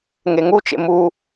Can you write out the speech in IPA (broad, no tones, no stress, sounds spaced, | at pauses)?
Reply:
ŋ e ŋ u t͡ʃ ḛ m u